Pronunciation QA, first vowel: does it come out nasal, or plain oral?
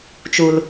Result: oral